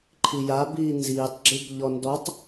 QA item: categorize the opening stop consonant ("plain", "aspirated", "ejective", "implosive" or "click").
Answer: click